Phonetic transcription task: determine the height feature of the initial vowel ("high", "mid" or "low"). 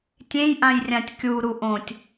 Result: mid